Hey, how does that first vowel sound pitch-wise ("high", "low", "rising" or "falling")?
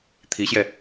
rising